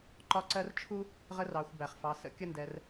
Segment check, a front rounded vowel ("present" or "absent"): absent